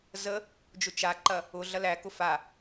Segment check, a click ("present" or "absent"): present